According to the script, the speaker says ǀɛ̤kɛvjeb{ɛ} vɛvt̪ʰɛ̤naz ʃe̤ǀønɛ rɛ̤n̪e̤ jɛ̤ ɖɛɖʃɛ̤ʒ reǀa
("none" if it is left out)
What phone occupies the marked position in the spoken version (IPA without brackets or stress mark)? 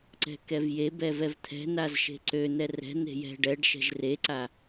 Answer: ɛ